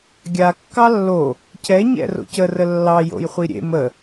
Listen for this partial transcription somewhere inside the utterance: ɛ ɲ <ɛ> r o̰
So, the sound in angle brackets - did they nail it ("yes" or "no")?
no